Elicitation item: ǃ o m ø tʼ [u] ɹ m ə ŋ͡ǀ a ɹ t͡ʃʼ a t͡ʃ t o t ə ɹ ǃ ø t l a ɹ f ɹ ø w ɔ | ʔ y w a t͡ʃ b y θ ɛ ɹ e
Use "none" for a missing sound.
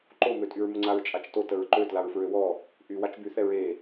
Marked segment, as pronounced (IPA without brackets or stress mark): y